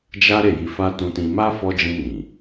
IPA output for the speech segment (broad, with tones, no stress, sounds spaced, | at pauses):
d͡ʒ a˦ ɾ e˦˨ j i˧ f a˦ t ũ˧ t ĩ˧ m a˦ f ɔ˧ d͡ʒ ĩ˧ n ĩ˨